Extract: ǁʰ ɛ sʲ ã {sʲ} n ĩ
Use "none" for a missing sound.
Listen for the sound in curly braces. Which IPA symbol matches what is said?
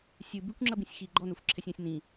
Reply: sʲ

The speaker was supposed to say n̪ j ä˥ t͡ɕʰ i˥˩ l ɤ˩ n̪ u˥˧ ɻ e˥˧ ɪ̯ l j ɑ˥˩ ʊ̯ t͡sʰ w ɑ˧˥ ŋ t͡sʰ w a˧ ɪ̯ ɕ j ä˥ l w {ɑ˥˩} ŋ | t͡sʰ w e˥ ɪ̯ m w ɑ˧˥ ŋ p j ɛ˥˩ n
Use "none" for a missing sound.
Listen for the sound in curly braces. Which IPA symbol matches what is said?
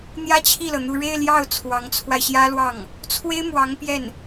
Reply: ɑ˥˩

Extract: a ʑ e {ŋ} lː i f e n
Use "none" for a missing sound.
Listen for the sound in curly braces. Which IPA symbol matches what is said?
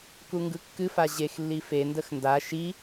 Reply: x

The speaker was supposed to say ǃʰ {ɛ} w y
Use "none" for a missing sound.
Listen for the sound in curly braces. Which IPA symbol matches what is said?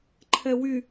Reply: ɛ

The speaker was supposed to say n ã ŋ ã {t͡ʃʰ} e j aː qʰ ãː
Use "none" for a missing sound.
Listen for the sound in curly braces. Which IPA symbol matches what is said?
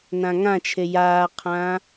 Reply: t͡ʃʰ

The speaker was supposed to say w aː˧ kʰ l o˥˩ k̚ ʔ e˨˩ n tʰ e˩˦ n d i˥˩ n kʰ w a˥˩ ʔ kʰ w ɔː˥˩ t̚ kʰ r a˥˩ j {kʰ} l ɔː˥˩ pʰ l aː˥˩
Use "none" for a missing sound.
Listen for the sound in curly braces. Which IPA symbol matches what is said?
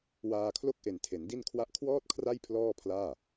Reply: pʰ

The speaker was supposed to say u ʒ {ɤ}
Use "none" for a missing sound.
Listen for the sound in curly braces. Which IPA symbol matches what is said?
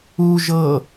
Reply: ɤ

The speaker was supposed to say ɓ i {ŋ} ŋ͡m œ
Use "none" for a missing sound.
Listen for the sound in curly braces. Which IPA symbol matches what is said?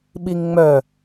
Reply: ŋ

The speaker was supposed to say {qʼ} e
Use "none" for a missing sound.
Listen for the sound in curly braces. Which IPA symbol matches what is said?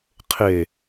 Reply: qʰ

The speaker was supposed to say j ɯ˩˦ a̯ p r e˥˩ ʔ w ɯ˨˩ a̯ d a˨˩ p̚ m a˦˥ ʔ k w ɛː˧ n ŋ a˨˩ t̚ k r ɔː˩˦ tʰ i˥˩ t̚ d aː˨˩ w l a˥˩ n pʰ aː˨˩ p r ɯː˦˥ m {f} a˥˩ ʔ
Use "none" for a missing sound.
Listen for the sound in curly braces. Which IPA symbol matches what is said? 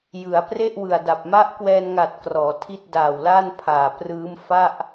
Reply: f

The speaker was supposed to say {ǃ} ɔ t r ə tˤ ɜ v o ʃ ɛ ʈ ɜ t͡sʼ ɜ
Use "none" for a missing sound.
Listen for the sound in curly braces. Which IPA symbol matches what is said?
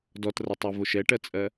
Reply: d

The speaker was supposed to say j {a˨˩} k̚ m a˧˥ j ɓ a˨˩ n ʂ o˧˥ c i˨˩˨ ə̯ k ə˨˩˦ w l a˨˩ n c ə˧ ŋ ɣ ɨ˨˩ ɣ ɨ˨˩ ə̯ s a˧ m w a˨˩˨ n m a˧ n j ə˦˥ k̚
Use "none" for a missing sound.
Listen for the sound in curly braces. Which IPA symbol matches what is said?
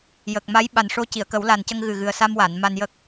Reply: ə˨˩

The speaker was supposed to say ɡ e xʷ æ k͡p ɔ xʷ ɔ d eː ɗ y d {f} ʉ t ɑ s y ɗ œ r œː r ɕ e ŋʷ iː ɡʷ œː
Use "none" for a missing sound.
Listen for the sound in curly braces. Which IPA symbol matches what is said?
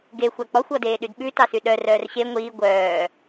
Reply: ɓ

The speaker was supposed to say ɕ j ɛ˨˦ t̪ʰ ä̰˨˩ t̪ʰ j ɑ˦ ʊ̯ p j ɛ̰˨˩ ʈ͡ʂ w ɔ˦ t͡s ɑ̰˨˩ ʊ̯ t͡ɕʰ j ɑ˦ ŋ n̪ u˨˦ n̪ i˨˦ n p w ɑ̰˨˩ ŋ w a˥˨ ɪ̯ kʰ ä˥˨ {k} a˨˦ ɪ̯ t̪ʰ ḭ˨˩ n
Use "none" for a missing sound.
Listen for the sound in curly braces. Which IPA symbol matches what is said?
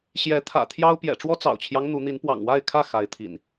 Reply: x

